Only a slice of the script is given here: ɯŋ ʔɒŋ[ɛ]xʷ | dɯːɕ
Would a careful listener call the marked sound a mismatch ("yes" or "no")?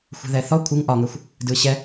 no